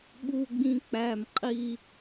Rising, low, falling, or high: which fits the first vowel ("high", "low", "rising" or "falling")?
high